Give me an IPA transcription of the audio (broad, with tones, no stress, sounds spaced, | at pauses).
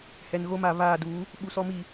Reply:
h ɛ˨ n ɣ o˦ m a˨ β aː˦˨ d uː˨˦ | ɓ u˨ s ɔ˦ m i˦˨